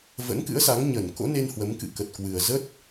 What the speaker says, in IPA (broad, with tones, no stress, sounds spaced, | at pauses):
v ə̰˧˥ n k ɨ̰˧˥ ə̯ s a˨˦ ŋ ɲ ə˧˩ n k o̰˧˥ n e˧ n h w ə˨˦ m k ɨ̰˧˨ k ə˨˩ t̚ k w ɨ˨˩ ə̯ z ə˦˥ t̚